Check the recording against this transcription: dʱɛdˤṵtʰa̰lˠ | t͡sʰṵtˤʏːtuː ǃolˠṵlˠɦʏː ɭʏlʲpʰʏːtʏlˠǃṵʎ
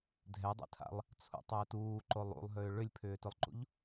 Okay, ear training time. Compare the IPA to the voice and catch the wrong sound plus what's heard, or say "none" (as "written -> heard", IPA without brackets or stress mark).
none